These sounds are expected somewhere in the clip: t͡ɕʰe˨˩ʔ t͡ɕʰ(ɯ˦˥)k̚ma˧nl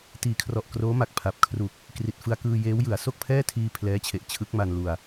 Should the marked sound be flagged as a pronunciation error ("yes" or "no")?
no